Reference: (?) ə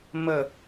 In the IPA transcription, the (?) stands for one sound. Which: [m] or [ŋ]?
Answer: m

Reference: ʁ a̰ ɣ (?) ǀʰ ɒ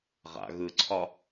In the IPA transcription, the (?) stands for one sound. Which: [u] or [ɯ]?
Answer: ɯ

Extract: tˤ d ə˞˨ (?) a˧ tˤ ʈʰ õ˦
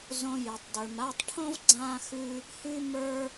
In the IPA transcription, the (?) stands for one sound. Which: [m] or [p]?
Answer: m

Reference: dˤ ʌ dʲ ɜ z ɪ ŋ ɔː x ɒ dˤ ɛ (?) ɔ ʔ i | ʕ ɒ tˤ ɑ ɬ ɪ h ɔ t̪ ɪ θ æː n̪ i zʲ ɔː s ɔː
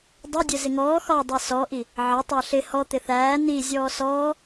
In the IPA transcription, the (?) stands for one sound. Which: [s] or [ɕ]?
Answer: s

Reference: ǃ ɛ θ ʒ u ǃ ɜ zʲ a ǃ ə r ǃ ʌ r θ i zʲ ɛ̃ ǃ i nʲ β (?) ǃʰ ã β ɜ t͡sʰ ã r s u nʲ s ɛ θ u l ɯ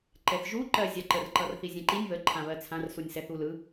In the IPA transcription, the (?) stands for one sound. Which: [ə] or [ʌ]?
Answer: ə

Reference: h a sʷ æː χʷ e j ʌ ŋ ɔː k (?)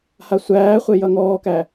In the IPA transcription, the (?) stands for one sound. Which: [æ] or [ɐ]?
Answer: æ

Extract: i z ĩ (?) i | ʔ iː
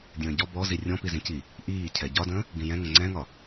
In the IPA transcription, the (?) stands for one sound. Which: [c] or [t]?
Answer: c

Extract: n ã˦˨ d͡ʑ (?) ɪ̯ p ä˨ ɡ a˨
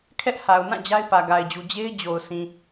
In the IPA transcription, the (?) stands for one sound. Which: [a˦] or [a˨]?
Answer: a˦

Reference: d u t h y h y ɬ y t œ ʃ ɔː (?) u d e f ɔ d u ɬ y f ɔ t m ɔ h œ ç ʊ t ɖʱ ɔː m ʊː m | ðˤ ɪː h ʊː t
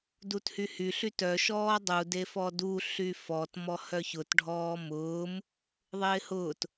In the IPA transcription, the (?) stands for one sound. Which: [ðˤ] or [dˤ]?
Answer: dˤ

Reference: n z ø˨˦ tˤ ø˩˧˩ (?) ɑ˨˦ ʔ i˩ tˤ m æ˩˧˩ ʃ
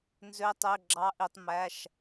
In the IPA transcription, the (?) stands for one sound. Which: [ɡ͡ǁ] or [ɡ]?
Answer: ɡ͡ǁ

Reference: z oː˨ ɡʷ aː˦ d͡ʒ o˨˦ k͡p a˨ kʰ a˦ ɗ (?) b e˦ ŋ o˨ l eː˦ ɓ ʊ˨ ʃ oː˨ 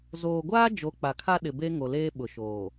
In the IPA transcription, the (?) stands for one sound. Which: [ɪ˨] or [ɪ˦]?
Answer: ɪ˨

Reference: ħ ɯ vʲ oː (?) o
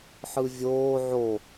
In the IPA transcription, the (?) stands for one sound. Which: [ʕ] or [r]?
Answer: ʕ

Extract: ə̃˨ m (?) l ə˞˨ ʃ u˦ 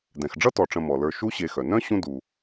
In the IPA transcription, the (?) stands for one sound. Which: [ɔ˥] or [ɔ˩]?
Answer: ɔ˩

